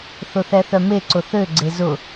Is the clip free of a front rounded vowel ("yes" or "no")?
no